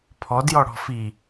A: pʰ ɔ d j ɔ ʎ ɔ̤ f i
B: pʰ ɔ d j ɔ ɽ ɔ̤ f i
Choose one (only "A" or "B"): B